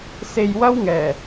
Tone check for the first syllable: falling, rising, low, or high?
low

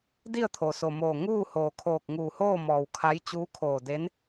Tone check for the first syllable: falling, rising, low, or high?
falling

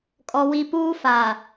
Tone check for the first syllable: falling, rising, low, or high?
low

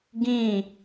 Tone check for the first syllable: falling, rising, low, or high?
falling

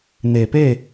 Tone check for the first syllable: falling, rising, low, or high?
low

